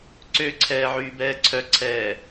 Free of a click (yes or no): no